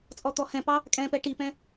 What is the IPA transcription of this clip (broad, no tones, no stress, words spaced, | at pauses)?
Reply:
t͡sʼɔt̪ɔhɛ̃pɑ | kʼɛ̃pɛ ʈipɛ̃